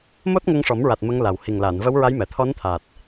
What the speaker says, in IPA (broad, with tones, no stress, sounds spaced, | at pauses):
m o˦˥ t̚ ŋ ə˧ ŋ ʂ ɔ˨˩˦ m ɹ a˨˩ t̚ m ə˧˥ ŋ l a˨˩ w h i˨˩ ŋ l a˨˩˨ n v ə˧˥ w ɹ a˧˥ j m ɛ˨˩ t̪ʰ ɔ˧˥ n t̪ʰ aː˨˩ t̚